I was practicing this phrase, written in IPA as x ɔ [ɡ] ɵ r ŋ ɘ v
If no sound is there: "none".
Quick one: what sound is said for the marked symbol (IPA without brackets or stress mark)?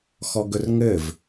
ɡ